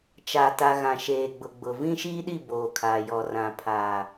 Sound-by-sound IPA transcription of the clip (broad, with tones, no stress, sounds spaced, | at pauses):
t͡ʃ a˨ t a˨ ɣ ã˨ ʃ eː˨ ɡ͡b ʊ˨ ɡ͡b ʊ˨ v ĩ˦ ʃ iː˦ ɗ i˦˨ b oː˨ kʰ aː˨ j ɔ˨ r ã˨ pʰ aː˨